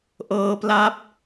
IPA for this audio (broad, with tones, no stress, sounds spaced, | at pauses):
ʔ ɤː˧ p l a˦˥ p̚